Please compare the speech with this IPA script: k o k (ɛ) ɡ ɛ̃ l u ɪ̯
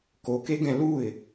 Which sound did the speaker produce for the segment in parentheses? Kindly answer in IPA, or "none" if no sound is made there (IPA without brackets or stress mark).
e